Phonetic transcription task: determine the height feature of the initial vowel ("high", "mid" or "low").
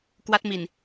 low